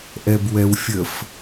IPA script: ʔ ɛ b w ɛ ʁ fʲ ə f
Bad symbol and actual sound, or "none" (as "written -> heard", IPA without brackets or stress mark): ʁ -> w